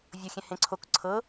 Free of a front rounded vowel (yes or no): yes